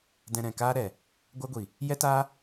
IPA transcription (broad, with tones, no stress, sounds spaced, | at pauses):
d ɛ̃˧ ɾ ɛ̃˨ k aː˦ ɾ ɛ˨ | ɡʷ a˦ ɡʷ i˨ | j ɛ˦ t aː˦